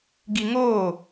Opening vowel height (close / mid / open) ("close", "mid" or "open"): close